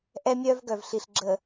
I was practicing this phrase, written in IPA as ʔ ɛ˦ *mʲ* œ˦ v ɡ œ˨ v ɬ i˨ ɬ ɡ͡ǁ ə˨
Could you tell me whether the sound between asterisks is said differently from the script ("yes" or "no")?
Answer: no